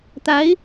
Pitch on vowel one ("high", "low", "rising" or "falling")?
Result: rising